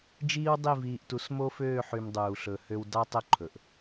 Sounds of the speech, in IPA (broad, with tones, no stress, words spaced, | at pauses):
d͡ʒiː˦wdˤi˦˨ viː˨ʔtu˨˦s mo˦føː˦˨ħy˨m dˤuː˨ɬɵ˨hø˦w dɑ˦tˤɵ˦ǃʰɵ˨ʔ